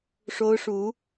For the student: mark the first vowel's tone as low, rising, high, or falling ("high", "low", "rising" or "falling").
high